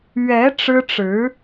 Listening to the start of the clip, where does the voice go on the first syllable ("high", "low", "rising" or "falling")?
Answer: rising